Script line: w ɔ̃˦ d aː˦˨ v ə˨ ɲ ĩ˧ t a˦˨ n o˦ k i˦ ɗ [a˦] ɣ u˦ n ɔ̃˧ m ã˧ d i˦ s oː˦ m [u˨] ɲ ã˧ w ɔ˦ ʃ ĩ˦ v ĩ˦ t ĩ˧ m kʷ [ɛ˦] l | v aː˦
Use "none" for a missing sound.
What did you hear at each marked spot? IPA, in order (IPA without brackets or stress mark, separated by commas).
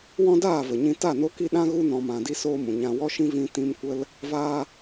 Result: ã˦, ũ˨, ə˦